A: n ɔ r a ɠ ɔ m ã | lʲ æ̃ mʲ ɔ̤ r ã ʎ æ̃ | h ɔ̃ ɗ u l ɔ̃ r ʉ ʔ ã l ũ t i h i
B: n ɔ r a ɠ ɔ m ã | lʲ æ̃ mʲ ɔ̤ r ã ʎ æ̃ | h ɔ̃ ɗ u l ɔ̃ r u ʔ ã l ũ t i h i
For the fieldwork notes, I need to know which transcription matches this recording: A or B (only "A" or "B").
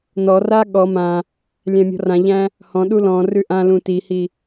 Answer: A